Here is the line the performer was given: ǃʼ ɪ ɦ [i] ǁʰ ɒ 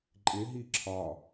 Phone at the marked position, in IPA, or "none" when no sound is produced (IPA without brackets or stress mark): i